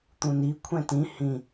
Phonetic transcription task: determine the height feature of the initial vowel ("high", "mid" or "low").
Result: high